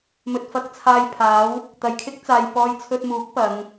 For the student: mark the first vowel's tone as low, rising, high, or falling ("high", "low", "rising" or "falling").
low